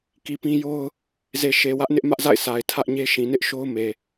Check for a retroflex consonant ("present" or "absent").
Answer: absent